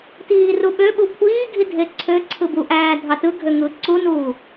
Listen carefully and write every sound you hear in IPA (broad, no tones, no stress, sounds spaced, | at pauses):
t iː r u ɓ ø ɓ u kʷʰ iː ɡʱ i dʱ e ǀʰ ø ǀʰ ɯ b u ʔ æː dʱ ɑ t ɯ ɡʱ ø ŋ ɯ ǀ u n uː